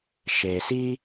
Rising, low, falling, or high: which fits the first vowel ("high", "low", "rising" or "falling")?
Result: low